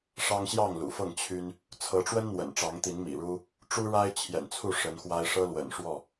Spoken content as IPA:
ʂ ɑ˦ ŋ ɕ j ɑ˥˨ ŋ l ṵ˨˩ f ɤ˥˨ ŋ t͡ɕʰ y˦ n | t͡sʰ ɤ˨˦ ʈ͡ʂ w ə˦ n n̪ w ə̰˨˩ n ʈ͡ʂ ɑ˨˦ ŋ t̪ i˨˦ n m ḭ˨˩ ɻ u˦ | ʈ͡ʂ u˦ ɻ a˦ ɪ̯ t͡ɕʰ j ɛ̰˨˩ n t͡sʰ u˥˨ ʂ ə˨˦ n x w a˦ ɪ̯ ʂ ɤ˦ l w ə̰˨˩ n ʂ w ɔ˥˨

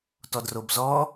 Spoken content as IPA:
t ɔ d r o b z ɔ

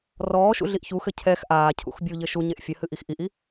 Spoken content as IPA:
r ɔː ʃ ṵ ɮ i ʔ ç u x ɘ cʰ ɛ x ʔ aː cʰ ṵ x bʲ u ʎ ɘ ʃ u ɲ e ʔ fʲ ɘ h ɨ ʔ i x ʔ i ʔ i

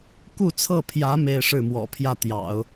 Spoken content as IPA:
k u˥˧ t͡sʰ ɤ˥˩ pʰ j ä˧˥ m e˥˧ ɪ̯ ʂ ɻ̩˥˩ m w ɔ̰˨˩ pʰ j ä˥˩ t̪ j ɑ̰˨˩˦ ʊ̯

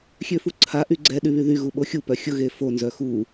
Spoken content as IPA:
xʲ ø f u ǀʰ a ʔ y ɡ͡ǀ ɛ ɗ y β y ð y ɣ u ɓ o xʲ u p œ xʲ ʊ ɣ e f o n z œ x u

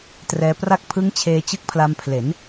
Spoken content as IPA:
t r ɛː˧ p r a˥˩ k̚ pʰ ɯ˦˥ ŋ t͡ɕʰ eː˧ t͡ɕ ɯ˦˥ k̚ pʰ l a˧ m pʰ l e˩˦ n

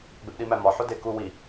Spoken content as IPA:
ɡ͡b e p ɗ i m æ m ɒ ħ o d e k u w i

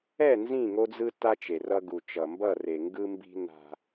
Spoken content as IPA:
ɛ˦˨ n z ĩ˦˨ ŋ o˦ d͡z ɯ˦ t a˦ t͡ʃ e˨ r ʌ˦ ɡ u˨ t͡ʃ ʌ˨ m b ʌ˦˨ r e˨ ŋ ɡ ɯ˦ m b i̤˦ n a̤˦

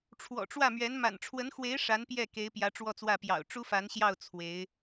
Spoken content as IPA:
ʈ͡ʂʰ w ɔ̰˨˩ ʈ͡ʂ w ä˥˩ m ɥ ɛ˧˥ n m a̰˨˩ n ʈ͡ʂʰ w ə˧˥ n x w e˧˥ ɪ̯ ʂ a˧˥ n p j ɛ˥˩ k e˧˥ ɪ̯ p j ä˧˥ ʈ͡ʂ w ɔ˥˧ t͡s w ä˥˩ p j ɑ̰˨˩ ʊ̯ ʈ͡ʂ u˥ f a˧˥ n ɕ j ɑ˥˩ ʊ̯ t͡sʰ w e˧˥ ɪ̯

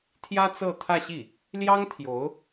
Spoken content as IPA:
t̪ʰ j ä˥ t͡s ɤ˥˧ t̪ʰ ä˥˧ ɕ i˥˩ | l j ɑ˥ ŋ t̪ʰ j o˧˥ ʊ̯

